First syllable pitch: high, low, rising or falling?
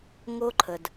high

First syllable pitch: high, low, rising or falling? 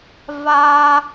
high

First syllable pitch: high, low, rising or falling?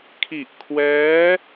low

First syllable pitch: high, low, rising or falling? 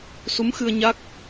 rising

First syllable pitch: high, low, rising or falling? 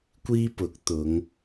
high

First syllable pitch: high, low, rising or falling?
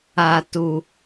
high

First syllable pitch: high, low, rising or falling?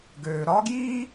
low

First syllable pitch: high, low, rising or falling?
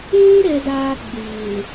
high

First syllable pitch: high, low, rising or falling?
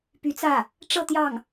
rising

